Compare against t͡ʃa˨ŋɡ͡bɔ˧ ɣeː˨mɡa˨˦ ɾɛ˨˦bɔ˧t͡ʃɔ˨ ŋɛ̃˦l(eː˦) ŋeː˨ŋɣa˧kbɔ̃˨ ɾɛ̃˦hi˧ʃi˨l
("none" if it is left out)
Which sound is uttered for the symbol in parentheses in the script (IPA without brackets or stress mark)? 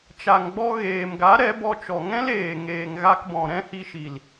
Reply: eː˨